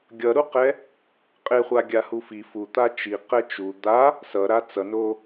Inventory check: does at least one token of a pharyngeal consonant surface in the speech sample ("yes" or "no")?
no